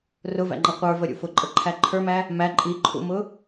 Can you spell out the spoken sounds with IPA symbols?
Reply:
r ʊ v æ̰ ŋ͡ǃ ʌ qʷ ə˞ v ə ɾʲ ṵ f ʊ ǃʼ ə ǃʰ æ ǃʰ ə˞ m æ | m æ ǃʼ i ǃʰ ṵ m ʊ

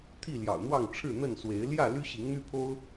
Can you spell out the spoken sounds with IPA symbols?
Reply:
t̪ʰ i˥˨ l j ɑ̰˨˩ ʊ̯ n̪ w ɑ˥˨ ŋ ʈ͡ʂʰ ɻ̩˥˨ n̪ ə˥˨ n s w e˨˦ ɪ̯ l j ä˥˨ l y˦ ɕ i˨˦ ŋ n̪ y˦ pʰ o˦ ʊ̯

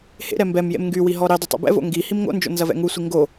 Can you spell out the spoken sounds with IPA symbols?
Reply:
h ḛ ɾ ɛ m b ɛ m j ḛ m ŋ ɡ y w i ɦ ɔ ɾ i dˤ ʊ tˤ ḭ b ɛ̰ v o̰ ŋ ɡ i h i m ŋ o̰ n d͡ʒ o̰ n z ɐ v ɛ̰ ŋ u sʷ i ŋ ɡ o

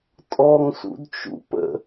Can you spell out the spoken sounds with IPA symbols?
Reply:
tʼ ɔ ŋ s ṵ d t͡ʃ ṵ p ə̰

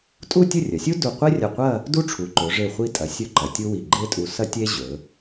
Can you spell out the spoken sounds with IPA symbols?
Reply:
tʼ u˥˧ tʲ ɵ˥˧ rʲ ɐ˩˧ sʲ u˥ d u˧˩ qʷ e˥ rʲ ɐ˧˩ qʷ ɐ˥˧ | d u˥ ʈ͡ʂʰ u˩˧ ǃ ɵ˩˧ ʐ e˧˩ χʷ i˧ tʼ ɐ˩˧ sʲ ɵ˥ ǃ ɐ˩˧ tʲ u˥ w i˧˩ ɡ͡ǃ e˥ tʼ u˧ s ɐ˥ tʲ e˥ ʑ ɵ˩˧

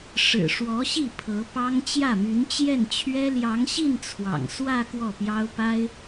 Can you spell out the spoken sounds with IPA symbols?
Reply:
ʂ ɻ̩˨˩ ʂ w ɔ˧˥ ɕ i˥˩ pʰ ɤ˧˥ p ɑ˥ ŋ t͡ɕ j ä˥˩ m y˧˥ n t͡ɕ j ɛ˥˩ n t͡ɕʰ ɥ ɛ˥ l j ɑ˧˥ ŋ ɕ i˥˩ n t͡sʰ w ɑ̰˨˩ ŋ s w ä˥˧ k w ɔ˥˩ p j ɑ˥ ʊ̯ p a˥ ɪ̯

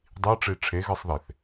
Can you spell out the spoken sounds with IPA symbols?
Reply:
dˤ i ə̯ ʈ͡ʂ i ʈ͡ʂʰ e ɣ ɨ sˤ ð e θ

